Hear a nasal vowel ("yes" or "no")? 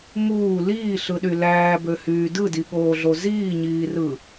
no